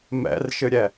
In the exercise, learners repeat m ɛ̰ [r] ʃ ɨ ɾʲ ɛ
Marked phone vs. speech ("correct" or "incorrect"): correct